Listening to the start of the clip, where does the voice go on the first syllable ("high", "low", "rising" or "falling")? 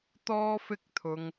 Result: high